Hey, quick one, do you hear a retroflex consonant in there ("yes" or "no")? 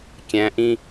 no